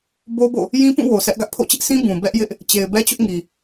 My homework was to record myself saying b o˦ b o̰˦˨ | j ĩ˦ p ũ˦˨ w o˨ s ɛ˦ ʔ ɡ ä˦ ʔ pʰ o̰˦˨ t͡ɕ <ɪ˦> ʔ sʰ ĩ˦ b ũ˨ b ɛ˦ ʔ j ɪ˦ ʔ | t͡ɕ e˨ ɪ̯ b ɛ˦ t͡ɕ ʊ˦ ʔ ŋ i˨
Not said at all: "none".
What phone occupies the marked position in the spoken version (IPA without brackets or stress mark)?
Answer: ɪ˦